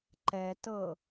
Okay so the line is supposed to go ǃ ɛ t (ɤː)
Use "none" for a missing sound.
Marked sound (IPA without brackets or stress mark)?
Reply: ɤ